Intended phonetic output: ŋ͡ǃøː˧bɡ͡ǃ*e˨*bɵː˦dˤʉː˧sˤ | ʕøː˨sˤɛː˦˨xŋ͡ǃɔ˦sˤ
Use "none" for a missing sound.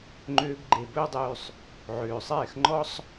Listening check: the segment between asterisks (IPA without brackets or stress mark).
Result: e˨